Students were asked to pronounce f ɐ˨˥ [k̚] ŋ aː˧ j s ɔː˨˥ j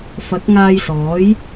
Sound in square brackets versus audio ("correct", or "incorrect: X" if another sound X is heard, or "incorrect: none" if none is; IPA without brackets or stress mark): correct